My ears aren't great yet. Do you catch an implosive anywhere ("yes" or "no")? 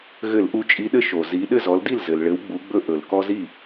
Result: yes